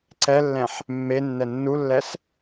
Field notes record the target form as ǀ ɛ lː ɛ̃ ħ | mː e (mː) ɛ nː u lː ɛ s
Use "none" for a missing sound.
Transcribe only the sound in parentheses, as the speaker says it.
nː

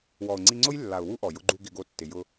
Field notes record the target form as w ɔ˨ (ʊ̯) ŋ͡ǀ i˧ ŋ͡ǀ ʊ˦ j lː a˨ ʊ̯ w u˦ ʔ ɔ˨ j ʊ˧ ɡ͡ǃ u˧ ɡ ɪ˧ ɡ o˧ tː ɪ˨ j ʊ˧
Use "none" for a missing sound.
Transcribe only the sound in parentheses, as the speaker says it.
ʊ̯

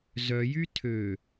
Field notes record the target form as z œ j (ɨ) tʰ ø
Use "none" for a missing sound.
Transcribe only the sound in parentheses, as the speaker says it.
y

